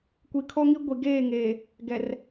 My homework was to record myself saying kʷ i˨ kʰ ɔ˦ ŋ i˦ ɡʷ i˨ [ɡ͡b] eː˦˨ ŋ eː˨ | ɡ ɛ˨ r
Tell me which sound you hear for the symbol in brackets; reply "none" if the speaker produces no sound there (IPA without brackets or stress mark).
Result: ɡ